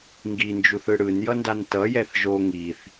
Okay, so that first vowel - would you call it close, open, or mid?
close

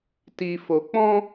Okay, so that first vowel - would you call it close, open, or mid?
close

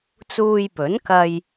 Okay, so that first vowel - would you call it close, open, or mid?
close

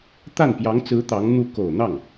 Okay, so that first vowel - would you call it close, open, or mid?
open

